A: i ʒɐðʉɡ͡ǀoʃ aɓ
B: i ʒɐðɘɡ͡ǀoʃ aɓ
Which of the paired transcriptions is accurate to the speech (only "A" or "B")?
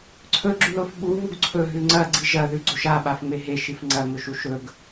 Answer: A